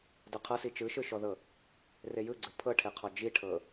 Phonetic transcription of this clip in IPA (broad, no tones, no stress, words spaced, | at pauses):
dɤqʰɤsi t͡ʃɯʃɯʃɔðɤ | rejɯɡ͡ǀɯ pʰɤʈʰeqʰɔ d͡ʒiʈʰɤ